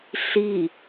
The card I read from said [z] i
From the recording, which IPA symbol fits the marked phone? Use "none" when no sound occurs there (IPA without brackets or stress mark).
ɬ